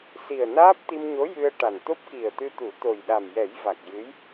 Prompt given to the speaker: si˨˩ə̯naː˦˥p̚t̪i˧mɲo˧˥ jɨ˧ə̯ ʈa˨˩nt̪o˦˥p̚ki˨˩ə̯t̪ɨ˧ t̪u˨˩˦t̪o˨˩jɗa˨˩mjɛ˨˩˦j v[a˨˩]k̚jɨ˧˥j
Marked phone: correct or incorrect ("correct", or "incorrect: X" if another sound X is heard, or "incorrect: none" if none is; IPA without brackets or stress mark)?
correct